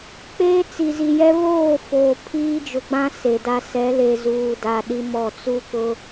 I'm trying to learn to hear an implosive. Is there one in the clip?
yes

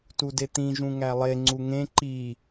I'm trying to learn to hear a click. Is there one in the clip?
yes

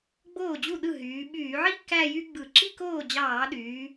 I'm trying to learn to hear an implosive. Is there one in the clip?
yes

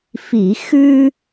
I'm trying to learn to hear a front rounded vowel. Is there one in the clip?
no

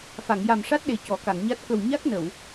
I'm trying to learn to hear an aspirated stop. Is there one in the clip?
no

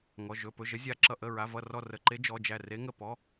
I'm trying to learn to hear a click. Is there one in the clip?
yes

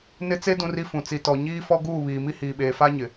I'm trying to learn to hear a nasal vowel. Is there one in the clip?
yes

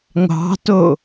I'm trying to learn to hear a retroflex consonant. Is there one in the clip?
no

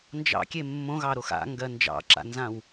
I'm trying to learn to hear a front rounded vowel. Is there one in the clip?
no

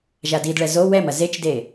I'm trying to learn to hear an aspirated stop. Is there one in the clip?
no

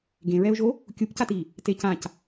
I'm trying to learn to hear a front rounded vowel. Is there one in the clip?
no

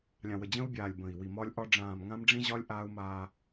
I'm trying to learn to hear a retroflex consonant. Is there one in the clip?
yes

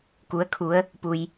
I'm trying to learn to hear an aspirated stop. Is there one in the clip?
yes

